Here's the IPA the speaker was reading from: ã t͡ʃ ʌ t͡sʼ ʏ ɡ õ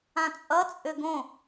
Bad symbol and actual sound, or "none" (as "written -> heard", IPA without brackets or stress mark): t͡ʃ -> t͡sʼ